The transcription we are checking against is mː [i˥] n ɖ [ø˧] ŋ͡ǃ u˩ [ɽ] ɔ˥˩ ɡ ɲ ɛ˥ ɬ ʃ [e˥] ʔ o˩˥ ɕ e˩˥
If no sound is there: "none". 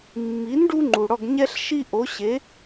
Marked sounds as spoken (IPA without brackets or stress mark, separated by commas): i˩˥, u˧, ɽ, i˥